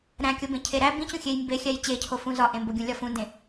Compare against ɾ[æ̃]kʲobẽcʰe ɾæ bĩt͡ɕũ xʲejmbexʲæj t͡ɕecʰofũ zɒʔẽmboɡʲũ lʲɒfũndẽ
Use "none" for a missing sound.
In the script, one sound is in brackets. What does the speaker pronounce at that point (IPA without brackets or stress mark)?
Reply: æ̃